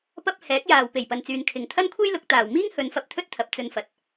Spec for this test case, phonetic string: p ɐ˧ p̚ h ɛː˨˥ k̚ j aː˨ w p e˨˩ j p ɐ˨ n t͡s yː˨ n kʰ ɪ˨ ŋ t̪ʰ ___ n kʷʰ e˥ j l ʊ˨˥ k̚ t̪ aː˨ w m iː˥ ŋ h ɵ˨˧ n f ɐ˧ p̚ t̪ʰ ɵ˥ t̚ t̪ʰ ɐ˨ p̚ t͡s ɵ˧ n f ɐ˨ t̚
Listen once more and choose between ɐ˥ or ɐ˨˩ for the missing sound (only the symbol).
ɐ˥